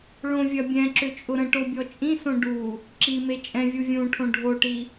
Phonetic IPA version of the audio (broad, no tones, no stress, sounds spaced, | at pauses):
ɭ õ vʲ ɐ bʲ ɛ̃ ǁ ʏ t͡ʃʼ ʊ ɾ ə̃ ʈ o bʲ ɔ t͡ʃʼ ĩ s õ ɖ u | ǁ i m e t͡ʃʼ ɛ̃ vʲ u vʲ ũ ʈʰ õ ɖʱ o ʈ i